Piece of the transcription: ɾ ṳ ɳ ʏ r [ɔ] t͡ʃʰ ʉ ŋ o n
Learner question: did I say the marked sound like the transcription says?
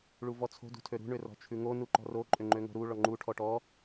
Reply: no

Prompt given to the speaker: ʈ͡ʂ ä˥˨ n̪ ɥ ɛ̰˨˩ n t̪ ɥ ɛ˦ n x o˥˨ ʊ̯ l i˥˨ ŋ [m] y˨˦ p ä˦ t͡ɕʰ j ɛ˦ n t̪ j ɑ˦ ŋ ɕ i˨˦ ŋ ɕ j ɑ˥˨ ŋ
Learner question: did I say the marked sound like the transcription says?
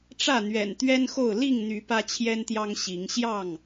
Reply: no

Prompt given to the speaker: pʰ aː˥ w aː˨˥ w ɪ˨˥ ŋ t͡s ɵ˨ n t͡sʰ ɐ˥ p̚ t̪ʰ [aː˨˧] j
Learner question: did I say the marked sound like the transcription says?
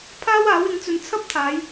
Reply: yes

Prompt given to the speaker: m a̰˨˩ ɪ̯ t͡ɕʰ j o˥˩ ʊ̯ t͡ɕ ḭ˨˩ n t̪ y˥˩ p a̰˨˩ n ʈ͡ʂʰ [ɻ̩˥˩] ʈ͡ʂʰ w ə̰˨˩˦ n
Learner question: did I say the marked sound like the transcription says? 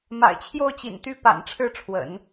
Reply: yes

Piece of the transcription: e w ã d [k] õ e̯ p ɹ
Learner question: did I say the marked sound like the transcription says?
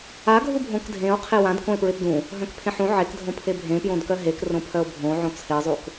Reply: yes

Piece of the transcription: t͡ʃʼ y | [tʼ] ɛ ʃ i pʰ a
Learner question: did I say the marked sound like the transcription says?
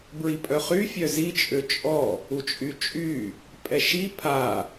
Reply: no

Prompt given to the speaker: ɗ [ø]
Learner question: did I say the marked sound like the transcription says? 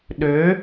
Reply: yes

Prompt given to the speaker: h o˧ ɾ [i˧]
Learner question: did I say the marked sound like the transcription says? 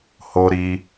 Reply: yes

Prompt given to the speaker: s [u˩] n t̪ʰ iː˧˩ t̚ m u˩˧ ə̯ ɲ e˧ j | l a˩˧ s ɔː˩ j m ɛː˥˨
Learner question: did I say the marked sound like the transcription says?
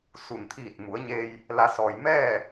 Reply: yes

